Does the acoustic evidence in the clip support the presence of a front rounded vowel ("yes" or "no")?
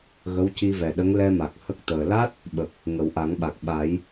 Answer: no